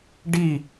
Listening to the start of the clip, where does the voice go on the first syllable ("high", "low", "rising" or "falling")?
falling